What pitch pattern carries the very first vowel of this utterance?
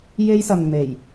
high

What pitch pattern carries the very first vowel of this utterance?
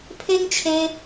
high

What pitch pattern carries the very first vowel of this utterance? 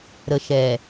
low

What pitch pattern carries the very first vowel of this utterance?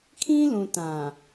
high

